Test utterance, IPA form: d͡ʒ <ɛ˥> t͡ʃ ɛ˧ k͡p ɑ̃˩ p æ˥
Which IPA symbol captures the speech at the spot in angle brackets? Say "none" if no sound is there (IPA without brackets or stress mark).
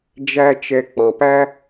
æ˥